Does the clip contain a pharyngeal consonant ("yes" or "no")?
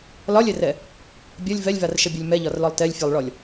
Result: no